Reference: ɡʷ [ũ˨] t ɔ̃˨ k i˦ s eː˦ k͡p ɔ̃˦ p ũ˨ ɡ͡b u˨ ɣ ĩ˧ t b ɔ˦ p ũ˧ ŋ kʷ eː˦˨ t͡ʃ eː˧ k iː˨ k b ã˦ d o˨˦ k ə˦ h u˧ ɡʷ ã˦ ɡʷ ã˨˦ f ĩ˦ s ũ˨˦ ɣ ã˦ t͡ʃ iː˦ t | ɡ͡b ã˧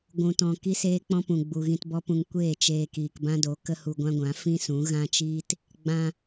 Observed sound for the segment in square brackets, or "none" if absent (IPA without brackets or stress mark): ũ˨